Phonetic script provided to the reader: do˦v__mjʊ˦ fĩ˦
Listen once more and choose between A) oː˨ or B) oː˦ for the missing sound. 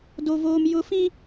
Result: B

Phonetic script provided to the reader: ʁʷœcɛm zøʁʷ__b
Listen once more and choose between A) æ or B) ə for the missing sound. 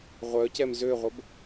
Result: B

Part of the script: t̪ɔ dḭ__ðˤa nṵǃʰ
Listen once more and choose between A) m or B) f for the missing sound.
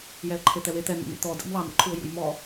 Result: A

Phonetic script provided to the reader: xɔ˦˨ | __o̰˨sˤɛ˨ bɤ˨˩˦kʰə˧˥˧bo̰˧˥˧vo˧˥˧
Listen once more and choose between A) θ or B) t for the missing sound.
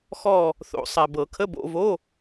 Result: A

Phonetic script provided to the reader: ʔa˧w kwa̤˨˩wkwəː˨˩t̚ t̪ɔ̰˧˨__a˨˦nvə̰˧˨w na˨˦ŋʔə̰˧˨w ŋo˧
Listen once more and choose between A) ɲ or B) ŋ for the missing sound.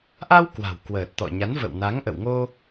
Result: A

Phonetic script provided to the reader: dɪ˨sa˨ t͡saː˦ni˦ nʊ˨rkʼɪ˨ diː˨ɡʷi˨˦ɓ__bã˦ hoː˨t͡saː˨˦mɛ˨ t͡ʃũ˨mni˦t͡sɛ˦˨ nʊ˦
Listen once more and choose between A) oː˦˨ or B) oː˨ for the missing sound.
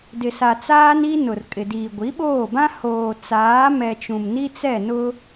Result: A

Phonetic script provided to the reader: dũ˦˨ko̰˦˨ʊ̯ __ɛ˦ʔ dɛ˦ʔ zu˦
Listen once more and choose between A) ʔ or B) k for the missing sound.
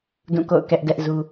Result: B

